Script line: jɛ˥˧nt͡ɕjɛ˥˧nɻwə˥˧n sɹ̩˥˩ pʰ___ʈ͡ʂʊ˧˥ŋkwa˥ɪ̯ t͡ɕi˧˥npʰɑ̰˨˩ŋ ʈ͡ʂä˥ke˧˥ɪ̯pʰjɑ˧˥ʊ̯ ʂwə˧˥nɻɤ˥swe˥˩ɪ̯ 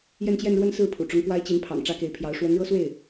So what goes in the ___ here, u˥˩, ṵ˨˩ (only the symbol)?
ṵ˨˩